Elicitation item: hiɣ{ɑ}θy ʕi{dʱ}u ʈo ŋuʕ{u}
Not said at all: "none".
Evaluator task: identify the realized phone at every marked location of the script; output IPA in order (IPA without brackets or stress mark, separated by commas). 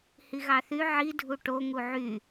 ɑ, dʱ, y